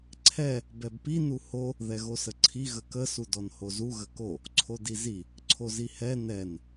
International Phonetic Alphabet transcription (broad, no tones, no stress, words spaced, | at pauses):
ǀʰɛ | bɛbpi nuho | ðɛɣosəǀʰi ɣəkə sudɔnhozu ɣəko | ǀʰodizi | ǀʰozihɛ nɛn